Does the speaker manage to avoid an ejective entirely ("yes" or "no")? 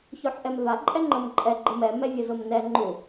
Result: no